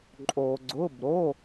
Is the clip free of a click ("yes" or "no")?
no